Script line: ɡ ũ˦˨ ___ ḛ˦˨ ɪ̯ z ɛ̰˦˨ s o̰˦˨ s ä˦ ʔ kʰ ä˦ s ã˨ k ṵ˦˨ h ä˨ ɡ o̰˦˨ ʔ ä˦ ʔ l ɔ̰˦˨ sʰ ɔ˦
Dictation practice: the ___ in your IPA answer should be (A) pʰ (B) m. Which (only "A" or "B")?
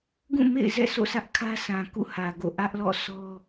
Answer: B